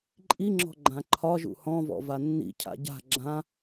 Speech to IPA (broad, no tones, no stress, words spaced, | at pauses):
ǃʼiŋ͡ǁɔ̤ ɡ͡ǃãǃʰɒʒṵ hɔ̃vɔ̰ vanːḭcʰa̰ ɟa̤ ɡ͡ǁã